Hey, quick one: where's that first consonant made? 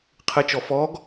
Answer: uvula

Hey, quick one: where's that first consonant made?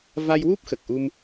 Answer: lips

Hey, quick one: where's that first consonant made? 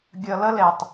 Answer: velum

